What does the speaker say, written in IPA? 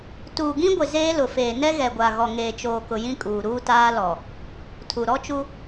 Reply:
t uː˨ ɡ ĩ˦ ɡʷ ɪ˨ z eː˦ l ʊ˨ f eː˨ n ɛ˦ ɣ ɛ˨ ɡʷ a˨ ɣ ɔ˨ ŋ eː˨ t͡ʃ oː˨ k ʊ˨ j ĩ˦ kʼ uː˨ ɾ uː˦ t aː˦ l ɔ˨ | tʰ u˨ ɾ ɔ˦ t͡ʃ u˦

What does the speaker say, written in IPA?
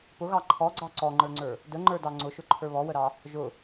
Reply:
p ʊ ɣ ɑ ǃʰ ɔ ɡ͡ǀ ɑ ǀ ɔ ŋ͡ǃ ə˞ ŋ͡ǀ ə˞ | d ə ŋ͡ǃ ə˞ d ɑ ŋ͡ǀ ʊ ʃ ʊ ǃʰ ə˞ β ɔ w ə ɾ ɑ | ʒ ʊ

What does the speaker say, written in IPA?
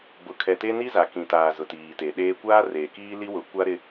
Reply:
b ʊ˨ kʰ ɛ˨ t e˦ n i˦ z a˨ k ĩ˨ t aː˨ z ʊ˨ t iː˨ t e˨ ɗ eː˦ kʷ aː˦ r eː˨ k iː˦ l i˦ w ʊ˨˦ kʷ a˦ ɾ ɪ˦

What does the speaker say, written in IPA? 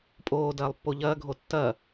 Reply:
pʼ oː d ɐː lˠ pː o ʎ ɐː ɡʱ o tː ɐ

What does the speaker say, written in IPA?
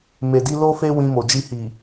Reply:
m e˨ d i˧ l o˦ f e˦ w ĩ˧ m o˨ d͡ʒ i˧ h i˨

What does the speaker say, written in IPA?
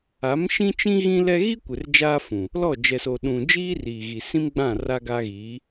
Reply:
a˨˦ m ʃ ĩ˦ t͡ʃ ĩ˦ ɣ ĩ˦ l ɛ˦ ɣ i˦ kʷ ɪ˨ r d͡ʒ aː˦ f ũ˨ | l ɔ˦˨ d͡ʒ ɛ˨ s o˨ ɗ ũ˨ d͡ʒ iː˦ r iː˨ ɣ i˨ s ĩ˦ m ɡ͡b ã˦˨ r a˦ ɡ a˦ ɣ iː˨˦

